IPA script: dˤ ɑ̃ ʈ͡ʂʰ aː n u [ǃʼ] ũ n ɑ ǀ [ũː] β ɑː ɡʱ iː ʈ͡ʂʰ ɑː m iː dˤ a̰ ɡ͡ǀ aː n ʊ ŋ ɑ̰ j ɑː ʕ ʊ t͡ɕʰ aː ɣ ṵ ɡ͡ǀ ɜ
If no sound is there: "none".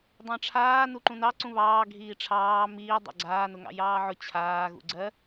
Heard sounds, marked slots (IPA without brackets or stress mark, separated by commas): ǃ, ũ